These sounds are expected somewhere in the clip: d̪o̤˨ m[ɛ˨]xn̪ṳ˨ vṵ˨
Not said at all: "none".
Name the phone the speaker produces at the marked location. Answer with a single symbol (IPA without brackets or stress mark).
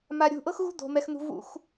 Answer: ɛ˨